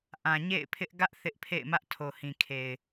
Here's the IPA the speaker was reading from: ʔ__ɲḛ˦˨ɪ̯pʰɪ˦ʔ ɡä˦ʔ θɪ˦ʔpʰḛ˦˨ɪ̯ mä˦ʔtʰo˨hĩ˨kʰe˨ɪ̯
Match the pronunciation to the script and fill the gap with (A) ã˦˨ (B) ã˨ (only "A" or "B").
B